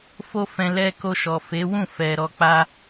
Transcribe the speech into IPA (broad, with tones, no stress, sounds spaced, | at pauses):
f o˦ f ɛ̃˧ l ɛ˧ k o˧ ʃ ɔ˨ f e˨˦ w ũ˦˨ f ɛ˨ ɾ ɔ˧ k͡p a˦